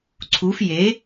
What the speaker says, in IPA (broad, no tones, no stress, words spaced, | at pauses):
ǀʰuf je